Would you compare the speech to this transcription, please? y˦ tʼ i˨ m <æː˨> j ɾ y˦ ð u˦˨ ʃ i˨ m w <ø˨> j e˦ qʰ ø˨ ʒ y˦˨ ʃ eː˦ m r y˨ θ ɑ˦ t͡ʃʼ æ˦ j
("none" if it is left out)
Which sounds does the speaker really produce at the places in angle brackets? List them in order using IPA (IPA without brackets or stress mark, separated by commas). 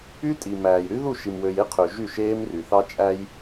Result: æː˨, ø˨